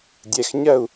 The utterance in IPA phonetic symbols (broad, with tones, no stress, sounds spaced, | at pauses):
dʲ ɛ˩˧˩ x ɲ ɜ˥˩ u̯